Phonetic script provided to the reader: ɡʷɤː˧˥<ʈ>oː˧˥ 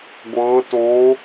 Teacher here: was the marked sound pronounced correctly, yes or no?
no